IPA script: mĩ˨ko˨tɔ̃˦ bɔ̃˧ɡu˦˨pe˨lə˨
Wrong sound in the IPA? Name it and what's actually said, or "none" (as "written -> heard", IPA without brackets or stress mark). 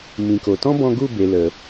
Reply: p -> b